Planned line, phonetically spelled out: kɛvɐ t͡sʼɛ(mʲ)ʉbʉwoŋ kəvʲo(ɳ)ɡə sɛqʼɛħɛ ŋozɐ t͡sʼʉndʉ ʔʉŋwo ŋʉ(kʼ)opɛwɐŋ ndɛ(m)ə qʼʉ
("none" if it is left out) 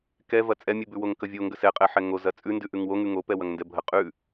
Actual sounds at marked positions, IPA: mʲ, ŋ, ŋ, bʱ

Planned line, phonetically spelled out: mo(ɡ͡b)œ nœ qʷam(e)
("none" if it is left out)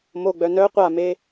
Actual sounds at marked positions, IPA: ɡ͡b, e

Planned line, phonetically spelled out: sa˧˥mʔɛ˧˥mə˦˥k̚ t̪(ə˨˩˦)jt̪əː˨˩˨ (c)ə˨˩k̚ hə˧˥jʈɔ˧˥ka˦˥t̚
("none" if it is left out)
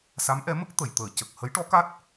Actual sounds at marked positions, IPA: ə˨˩˨, c

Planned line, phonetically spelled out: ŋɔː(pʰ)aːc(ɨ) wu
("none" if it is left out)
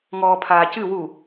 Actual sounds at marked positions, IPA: pʰ, ɨ

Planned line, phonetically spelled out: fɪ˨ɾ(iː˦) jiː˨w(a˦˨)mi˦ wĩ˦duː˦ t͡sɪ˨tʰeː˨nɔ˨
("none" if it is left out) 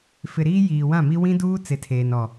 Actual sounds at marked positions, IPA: iː˦, ã˦˨

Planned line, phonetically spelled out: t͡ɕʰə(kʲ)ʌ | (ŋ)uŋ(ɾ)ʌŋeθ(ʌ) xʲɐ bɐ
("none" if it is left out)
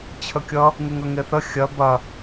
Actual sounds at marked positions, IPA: kʲ, ŋ, ɾ, ə

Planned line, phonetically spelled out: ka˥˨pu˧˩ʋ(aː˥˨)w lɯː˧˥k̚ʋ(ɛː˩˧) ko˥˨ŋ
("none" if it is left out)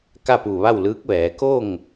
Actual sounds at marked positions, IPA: a˥˨, ɛː˩˧

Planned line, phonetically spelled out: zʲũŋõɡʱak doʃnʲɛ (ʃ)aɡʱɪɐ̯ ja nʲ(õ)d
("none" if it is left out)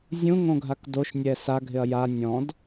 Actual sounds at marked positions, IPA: s, ɔ̃

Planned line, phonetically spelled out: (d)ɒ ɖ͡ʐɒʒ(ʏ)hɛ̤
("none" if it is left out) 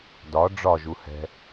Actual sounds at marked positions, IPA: d, u

